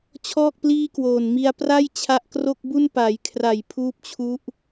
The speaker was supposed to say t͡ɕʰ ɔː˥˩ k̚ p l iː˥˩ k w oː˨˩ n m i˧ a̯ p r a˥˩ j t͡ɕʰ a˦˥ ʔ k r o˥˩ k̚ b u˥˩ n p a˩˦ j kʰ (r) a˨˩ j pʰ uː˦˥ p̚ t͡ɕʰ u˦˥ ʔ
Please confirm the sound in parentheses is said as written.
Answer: yes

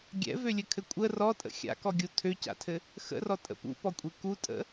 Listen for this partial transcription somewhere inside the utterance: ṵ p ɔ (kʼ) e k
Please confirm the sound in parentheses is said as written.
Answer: no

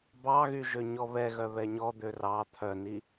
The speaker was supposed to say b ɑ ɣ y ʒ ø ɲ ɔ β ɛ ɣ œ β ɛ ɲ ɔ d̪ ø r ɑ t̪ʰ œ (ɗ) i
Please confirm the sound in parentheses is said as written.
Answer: no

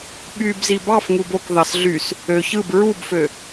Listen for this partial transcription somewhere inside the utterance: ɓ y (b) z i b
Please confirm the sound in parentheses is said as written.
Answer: yes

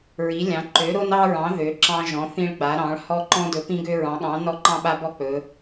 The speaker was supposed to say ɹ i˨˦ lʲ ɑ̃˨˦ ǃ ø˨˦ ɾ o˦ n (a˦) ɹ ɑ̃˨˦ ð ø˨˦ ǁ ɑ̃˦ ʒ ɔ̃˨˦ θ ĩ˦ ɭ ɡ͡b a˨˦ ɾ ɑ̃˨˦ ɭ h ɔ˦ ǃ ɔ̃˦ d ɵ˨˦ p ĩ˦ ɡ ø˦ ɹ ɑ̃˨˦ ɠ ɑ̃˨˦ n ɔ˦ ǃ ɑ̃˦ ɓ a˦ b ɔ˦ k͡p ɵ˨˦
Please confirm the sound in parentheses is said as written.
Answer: no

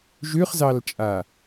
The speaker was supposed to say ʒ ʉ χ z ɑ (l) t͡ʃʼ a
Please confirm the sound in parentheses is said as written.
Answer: yes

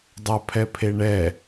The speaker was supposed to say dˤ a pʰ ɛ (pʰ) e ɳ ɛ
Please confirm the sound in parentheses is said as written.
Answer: yes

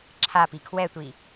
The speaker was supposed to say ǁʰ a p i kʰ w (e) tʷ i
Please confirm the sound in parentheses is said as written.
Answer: no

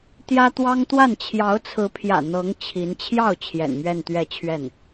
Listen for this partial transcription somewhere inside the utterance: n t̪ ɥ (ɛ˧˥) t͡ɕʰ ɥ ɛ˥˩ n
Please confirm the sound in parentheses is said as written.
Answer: no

